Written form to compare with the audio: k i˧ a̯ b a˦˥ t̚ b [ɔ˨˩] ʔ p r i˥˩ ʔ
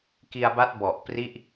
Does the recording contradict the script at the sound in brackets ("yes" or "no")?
no